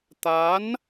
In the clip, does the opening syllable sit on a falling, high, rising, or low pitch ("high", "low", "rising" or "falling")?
rising